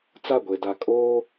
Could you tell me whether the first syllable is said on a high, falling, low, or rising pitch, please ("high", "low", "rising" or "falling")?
falling